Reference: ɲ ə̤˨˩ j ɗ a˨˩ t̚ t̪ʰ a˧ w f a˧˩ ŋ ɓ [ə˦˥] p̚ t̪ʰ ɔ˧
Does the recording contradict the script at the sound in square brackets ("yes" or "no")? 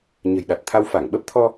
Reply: no